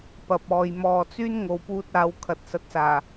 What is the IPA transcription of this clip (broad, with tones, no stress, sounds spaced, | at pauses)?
p ɐ˨ p̚ ɔː˨ j m ɔː˨ t͡s yː˥ n ŋ o˨ w p uː˧ t̚ aː˨˧ w kʰ ɐ˨ t̚ s ɐ˨˥ t̚ s aː˨˩